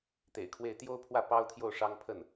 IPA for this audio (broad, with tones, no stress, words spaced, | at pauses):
t̪ḛ˨˩ɪ̯kʰwe˥˩ɪ̯ t̪jo˥ʊ̯pʰwä˥˩ pɑ˥ʊ̯t̪ʰjo˥˩ʊ̯ ʂɑ˥ŋpʰə˥˩n